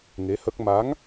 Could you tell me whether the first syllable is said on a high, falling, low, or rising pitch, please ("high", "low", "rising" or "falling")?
rising